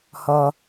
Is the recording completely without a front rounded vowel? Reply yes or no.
yes